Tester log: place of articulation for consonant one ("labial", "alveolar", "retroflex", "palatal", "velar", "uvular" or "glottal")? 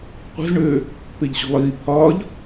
uvular